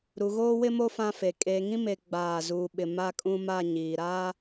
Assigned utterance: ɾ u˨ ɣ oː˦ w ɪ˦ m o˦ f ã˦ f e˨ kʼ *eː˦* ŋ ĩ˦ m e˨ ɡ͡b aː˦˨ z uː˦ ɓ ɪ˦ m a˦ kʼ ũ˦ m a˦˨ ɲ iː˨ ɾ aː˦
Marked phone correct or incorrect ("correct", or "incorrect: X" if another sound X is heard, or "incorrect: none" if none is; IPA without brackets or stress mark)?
incorrect: eː˨